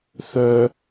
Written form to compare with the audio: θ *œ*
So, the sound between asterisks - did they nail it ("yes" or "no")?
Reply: yes